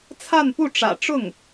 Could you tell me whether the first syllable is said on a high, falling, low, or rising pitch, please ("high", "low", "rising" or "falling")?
falling